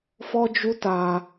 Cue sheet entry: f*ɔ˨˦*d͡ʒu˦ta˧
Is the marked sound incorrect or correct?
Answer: incorrect